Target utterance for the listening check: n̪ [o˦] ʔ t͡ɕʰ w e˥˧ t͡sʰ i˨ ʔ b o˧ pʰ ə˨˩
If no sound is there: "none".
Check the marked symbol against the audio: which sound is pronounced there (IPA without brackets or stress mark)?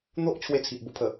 o˦